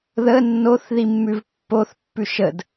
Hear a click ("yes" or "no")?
no